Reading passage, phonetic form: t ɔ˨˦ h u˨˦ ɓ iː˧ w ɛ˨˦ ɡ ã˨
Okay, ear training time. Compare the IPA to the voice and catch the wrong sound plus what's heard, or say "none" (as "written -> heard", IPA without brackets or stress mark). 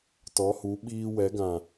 none